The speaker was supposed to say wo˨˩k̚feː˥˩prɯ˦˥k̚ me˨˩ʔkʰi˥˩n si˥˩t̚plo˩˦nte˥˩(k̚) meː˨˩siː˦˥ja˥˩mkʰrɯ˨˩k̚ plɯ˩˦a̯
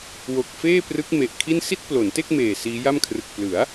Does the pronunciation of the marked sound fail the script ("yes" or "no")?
no